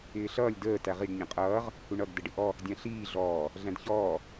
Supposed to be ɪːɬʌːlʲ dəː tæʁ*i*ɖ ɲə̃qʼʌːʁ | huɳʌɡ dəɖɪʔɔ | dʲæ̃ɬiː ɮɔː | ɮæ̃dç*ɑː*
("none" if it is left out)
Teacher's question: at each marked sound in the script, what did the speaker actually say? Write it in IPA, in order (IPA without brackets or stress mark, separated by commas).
i, ɔː